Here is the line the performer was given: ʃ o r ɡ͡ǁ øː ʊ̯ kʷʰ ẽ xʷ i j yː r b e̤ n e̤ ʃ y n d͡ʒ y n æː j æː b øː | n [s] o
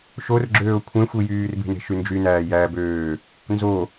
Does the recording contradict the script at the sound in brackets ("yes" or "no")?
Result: yes